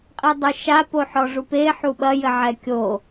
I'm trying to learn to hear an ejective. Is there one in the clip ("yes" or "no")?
yes